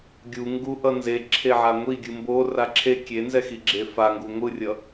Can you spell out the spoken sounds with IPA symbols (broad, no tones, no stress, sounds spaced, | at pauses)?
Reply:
ɡʲ u ŋ ɡ u ʔ ʌ n z e ǁʰ e ʕ a ŋʷ i ɡʲ ɯ m b o r a ǁʰ e kʲ e n z ɛ x i ɡ͡ǁ e f a ŋ ɡ u ŋʷ ɯ rʲ ʌ